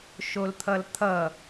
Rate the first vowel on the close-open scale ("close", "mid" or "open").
mid